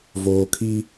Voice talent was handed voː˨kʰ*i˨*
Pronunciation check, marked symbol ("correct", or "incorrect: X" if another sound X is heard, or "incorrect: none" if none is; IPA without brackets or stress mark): incorrect: i˦